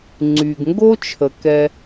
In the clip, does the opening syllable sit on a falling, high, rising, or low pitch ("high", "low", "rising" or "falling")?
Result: low